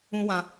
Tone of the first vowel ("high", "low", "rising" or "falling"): high